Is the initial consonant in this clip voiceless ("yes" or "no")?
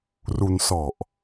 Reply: no